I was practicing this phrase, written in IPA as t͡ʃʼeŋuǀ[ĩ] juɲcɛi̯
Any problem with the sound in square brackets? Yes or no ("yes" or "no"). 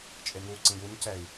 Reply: no